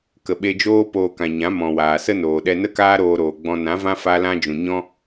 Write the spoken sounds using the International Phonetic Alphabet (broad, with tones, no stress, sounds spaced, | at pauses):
k ə˨ ɓ e˧ d͡ʒ oː˦ p oː˧ k ã˨ ɲ ã˨˦ m ɔ̃˨ w aː˨ s ə˦ n oː˨ ɗ ɛ˧ n ə˦ k aː˦ ɾ oː˧ ɾ oː˨ ɡ͡b ɔ̃˧ n ã˨˦ v ã˦ f a˦ l ã˦ d͡ʒ ũ˨ ɲ ɔ̃˦